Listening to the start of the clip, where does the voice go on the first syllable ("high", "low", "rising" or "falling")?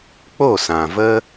falling